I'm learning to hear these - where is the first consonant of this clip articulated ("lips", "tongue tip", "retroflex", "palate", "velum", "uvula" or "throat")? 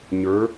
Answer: palate